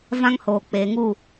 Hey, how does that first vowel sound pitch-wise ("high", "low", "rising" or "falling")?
high